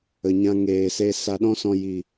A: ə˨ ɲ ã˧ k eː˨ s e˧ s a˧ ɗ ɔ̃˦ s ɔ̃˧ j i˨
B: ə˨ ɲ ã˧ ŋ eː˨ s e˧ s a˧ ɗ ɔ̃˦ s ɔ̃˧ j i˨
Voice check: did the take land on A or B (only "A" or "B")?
B